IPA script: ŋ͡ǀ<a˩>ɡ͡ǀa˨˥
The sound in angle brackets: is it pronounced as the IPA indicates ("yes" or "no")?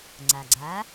yes